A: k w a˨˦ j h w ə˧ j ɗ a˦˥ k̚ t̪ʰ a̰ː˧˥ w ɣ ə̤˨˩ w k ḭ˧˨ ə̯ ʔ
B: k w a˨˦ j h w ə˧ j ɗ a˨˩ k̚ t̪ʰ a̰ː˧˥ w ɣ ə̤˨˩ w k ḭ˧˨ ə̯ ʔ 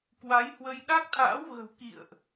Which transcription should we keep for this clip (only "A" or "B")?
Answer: A